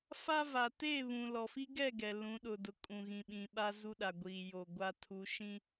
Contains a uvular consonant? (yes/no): no